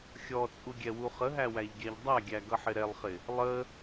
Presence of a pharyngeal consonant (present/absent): present